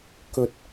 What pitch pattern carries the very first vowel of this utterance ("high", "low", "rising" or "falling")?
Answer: low